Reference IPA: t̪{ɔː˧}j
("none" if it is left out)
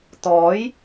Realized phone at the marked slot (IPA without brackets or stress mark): ɔː˨˥